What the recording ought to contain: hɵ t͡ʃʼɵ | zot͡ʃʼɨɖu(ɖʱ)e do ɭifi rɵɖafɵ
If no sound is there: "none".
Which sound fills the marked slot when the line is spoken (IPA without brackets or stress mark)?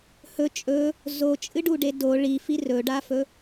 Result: ɖ